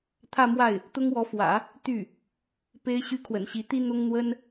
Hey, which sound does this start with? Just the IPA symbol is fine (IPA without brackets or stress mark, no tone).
t̪ʰ